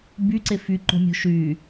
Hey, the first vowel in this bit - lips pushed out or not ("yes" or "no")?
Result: yes